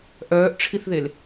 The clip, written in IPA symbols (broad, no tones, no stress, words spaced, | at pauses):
ʔœːʔʈ͡ʂʰiθðel